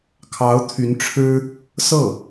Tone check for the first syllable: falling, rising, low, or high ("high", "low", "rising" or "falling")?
rising